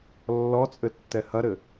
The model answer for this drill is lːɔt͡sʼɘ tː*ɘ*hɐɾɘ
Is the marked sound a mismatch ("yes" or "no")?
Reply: yes